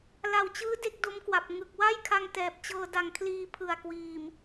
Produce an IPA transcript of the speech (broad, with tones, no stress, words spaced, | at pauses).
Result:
la˨˩wt͡ɕɯː˦˥ de˦˥k̚do˦˥mkwa˨˩p̚ ŋɯ˨˩k̚ wa˥˩jkʰa˧ŋ tɛː˨˩p̚ t͡ɕɤː˧da˨˩ŋkʰliː˧ pʰɯ˨˩a̯ kwiː˨˩m